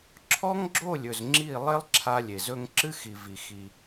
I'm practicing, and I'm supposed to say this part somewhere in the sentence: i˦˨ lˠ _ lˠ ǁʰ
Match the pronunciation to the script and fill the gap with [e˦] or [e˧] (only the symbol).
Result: e˦